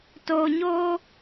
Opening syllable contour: low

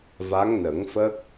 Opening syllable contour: rising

